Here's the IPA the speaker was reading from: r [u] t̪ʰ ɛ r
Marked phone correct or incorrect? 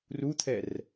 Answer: correct